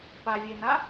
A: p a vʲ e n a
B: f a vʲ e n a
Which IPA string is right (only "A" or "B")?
A